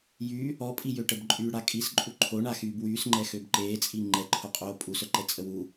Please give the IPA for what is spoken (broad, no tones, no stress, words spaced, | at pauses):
jy | ɔpʼijøʈəb ǃʼyːɽakʼisǃʼu ǃʰoɳaxyːb wyːsŋ͡ǃɛ xøbǃeːt͡sʼi ŋ͡ǃɛǃʰo qʼoːpʼusœǃɛ t͡sʼəwu